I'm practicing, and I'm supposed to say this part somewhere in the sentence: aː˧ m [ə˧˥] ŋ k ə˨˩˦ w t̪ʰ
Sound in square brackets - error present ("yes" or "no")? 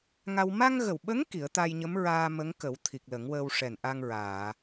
no